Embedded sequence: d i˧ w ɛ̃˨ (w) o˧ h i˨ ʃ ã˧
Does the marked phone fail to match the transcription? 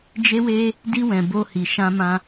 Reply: yes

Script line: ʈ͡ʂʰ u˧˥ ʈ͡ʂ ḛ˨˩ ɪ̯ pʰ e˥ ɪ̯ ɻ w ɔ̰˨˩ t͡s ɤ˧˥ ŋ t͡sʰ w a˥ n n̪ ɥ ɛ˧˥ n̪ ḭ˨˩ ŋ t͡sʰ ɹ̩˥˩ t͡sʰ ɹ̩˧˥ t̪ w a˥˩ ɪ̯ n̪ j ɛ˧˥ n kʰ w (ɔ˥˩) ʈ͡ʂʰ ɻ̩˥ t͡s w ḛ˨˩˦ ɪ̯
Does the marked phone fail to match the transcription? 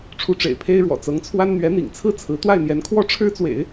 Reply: yes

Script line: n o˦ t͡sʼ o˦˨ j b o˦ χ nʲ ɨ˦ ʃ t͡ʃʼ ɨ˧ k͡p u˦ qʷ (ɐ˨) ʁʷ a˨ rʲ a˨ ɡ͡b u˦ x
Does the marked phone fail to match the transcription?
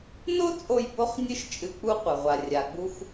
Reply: no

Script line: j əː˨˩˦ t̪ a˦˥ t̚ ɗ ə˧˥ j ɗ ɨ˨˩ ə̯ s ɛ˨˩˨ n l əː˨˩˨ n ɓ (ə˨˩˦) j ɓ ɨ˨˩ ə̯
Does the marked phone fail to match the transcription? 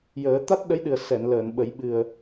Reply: no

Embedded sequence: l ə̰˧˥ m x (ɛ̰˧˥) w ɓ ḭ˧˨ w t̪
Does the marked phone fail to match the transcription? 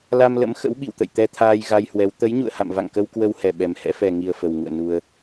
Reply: yes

